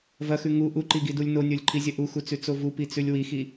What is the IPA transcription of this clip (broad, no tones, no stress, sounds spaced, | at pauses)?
v ɐ x ʉ ŋ u ʔ u ǃ i ɡ i d u lʲ n o nʲ o lʲ ǃʰ i zʲ ɐ ʔ u x u t͡s ʉ t͡s o v u p i t͡s ʉ lʲ w i x i